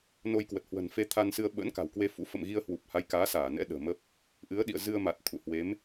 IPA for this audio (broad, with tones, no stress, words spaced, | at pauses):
no˧jkwə˨˩t̚hwə̤˨˩n fe˧t̪ʰa˧nsɨ˧ə̯ ɓə̰ː˧˥n ka̤˨˩wkwe˧fṵ˧˥ fə̰˧˨mɣi˧ə̯hwu˨˩p̚ha˨˦j kaː˨˦ saː˧˩nɛ̰˧˥ ɗə̤ː˨˩məː˦˥p̚ | ʔɨ˨˦ə̯ɗḭ˧˨ə̯ zɨ˧ə̯ma˨˩t̚ t̪ʰṵ˧˨hwe˨˦m